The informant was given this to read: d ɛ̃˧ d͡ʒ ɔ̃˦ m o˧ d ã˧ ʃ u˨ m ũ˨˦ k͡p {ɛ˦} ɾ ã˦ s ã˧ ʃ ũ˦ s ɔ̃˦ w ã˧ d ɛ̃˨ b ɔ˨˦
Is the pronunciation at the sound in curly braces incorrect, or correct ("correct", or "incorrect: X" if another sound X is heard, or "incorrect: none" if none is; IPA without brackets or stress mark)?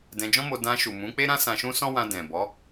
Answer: incorrect: e˦